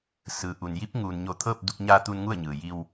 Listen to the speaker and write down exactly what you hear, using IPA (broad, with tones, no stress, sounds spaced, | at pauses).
s ɯː˩ ʔ u˩ n j i˧˥ p̚ ŋ uː˩ n ɲ o˧˩ t̪ʰ ɤː˥˨ p̚ d u˧ k̚ ɲ aː˧ t̪ uː˧ n ŋ u˥˨ ə̯ ɲ ɯː˩ j i˧ w